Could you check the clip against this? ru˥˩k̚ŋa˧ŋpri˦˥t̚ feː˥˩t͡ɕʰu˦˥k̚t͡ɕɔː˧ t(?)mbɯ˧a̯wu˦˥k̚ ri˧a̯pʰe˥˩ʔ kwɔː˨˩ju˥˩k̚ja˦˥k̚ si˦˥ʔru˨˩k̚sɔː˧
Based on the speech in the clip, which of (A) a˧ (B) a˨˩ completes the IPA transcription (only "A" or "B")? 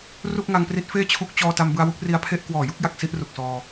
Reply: A